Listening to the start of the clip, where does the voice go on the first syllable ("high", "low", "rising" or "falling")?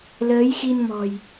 rising